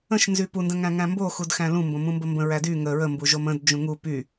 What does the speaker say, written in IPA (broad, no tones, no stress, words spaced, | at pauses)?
ə̃ʃnzy pundə̃ŋæ̃ ŋæ̃mboxud xæ̃lũ mbõmũmbəmbə̃ ɹædy ŋə ɹəmbu ʒomə̃d d͡ʒũŋu py